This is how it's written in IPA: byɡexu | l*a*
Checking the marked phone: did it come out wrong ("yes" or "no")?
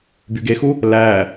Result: yes